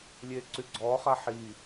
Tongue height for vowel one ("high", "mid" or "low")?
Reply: mid